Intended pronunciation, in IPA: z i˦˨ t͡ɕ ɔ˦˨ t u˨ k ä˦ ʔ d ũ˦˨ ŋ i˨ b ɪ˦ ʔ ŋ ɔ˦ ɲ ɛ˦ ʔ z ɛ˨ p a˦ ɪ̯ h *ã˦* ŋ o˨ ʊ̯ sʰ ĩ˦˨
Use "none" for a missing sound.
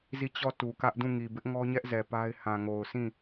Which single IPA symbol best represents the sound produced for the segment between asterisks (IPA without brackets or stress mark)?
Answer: ã˨